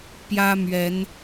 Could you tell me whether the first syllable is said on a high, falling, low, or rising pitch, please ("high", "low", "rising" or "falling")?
high